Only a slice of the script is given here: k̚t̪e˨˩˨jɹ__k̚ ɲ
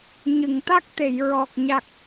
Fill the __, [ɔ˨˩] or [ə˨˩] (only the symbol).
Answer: ɔ˨˩